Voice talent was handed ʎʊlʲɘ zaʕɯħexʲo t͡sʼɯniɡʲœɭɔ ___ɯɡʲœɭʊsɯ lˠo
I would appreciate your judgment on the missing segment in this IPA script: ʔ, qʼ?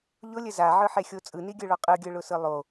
qʼ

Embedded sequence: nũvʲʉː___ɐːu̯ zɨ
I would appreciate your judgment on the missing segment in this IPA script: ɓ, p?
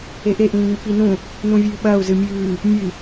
ɓ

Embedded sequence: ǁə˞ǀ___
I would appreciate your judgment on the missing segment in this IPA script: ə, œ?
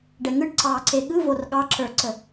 ə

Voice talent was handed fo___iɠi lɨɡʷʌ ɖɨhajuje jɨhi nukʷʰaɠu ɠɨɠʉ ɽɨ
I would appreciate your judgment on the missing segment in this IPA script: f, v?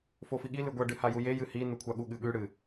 f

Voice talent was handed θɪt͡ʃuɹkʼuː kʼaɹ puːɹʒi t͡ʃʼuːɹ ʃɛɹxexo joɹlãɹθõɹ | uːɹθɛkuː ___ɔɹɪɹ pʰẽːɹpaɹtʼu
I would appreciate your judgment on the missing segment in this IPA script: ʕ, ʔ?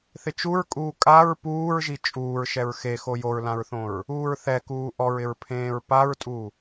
ʔ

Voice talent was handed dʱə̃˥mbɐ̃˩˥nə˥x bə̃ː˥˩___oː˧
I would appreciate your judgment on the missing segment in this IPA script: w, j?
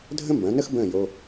j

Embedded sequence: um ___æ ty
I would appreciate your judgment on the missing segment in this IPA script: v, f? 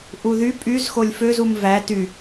v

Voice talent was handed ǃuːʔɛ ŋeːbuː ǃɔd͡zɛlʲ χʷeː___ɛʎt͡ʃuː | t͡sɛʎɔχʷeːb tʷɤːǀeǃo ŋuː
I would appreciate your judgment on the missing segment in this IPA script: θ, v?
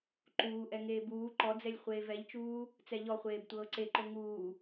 v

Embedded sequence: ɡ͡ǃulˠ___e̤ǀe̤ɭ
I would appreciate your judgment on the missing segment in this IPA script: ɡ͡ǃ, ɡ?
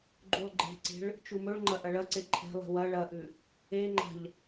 ɡ͡ǃ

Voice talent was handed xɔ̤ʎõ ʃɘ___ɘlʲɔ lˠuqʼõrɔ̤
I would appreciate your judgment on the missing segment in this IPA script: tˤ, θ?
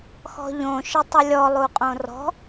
tˤ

